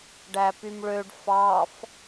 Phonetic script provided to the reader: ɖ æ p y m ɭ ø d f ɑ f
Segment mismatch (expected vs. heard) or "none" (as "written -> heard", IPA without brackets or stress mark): d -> ɖ